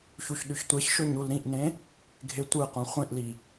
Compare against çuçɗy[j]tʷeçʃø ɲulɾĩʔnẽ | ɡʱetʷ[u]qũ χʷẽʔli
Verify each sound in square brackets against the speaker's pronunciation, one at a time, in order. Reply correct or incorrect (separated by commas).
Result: incorrect, incorrect